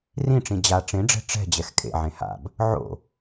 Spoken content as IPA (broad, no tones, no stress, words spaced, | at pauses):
rĩʈ͡ʂĩ d͡ʑa ʈ͡ʂẽɖ͡ʐɛ̤ ʈ͡ʂɛ̤ d͡ʑɛxkʼḛ ʕẽha̰b | ʕo̰